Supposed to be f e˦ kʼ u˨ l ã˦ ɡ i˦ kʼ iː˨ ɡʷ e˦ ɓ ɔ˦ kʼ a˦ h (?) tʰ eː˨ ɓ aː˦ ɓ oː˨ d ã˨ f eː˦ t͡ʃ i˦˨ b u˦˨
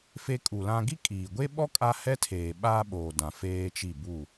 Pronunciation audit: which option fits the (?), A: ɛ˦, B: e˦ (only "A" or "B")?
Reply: A